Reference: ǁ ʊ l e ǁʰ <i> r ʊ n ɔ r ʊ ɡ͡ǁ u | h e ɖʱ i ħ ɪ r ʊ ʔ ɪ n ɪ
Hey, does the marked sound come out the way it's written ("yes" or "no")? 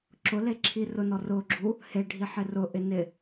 yes